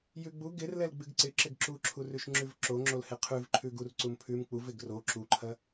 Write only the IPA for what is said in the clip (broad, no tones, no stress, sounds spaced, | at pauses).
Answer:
j ʉ ɡ͡b u ɡ ɪ r l ɛ l ɡ͡b ɨ ɡ ǀ ɪ ǁ ɪ ɡ ǁ u ǁʰ u r ʉ ʃ ŋ͡ǁ ʉ v ǁ o ŋ͡ǁ o l h ɪ qʰ ʉ v ǃʰ ʉ ɡ u r ǀ u m pʰ ʉ m k͡p u v ɪ ɡ r o ǁ u ǃʰ ɐ